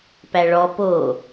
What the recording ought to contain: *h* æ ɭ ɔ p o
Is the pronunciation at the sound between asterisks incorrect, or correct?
incorrect